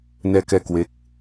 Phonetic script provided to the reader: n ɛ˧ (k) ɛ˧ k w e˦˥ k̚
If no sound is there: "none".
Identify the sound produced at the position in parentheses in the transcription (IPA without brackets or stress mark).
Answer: k